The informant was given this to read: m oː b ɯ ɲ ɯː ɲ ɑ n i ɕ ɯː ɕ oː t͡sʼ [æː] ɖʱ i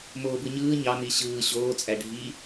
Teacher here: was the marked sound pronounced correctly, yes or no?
no